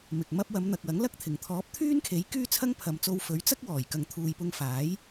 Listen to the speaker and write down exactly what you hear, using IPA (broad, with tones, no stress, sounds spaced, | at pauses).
m ɪ˨ k̚ m ɐ˥ p̚ w ɐ˨˧ m n̪ ɐ˨ k̚ w ɐ˨˥ ŋ l ɐ˥ k̚ t̪ʰ ɪ˨˩ ŋ t̪ʰ ɔː˨˥ p̚ t̪ʰ yː˥ n kʰ e˨˥ j k yː˥ t͡sʰ ɐ˥ ŋ pʰ ɐ˨ m t͡s o˧ w f ɵ˨˥ ɥ t͡s ɐ˥ k̚ w ɔː˨˩ j k ɐ˨ ŋ t̪ʰ uː˨ j p ʊ˧ ŋ f aː˨˥ j